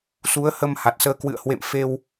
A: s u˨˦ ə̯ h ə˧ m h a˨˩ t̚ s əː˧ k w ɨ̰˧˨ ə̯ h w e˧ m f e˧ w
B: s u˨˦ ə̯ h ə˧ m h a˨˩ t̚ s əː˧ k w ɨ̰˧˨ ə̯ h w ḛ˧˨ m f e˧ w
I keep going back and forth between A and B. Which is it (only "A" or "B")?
B